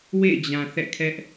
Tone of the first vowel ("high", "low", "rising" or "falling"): falling